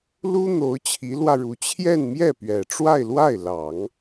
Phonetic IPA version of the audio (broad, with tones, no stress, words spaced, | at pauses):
lu˥ n̪o˧˥ʊ̯t͡ɕʰi˧˥lwä˧ɻu˧˥ t͡ɕʰjɛ˥˧nmjɛ˥˩ pɥɛ˨˩ʈ͡ʂwa˥˧ɪ̯lwa˥˩ɪ̯ lɑ˨˩˦ŋ